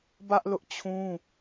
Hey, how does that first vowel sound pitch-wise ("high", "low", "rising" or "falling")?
high